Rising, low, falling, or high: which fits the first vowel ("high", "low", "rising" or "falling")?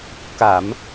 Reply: low